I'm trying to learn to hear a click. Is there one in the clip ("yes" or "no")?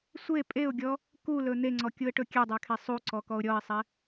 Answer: yes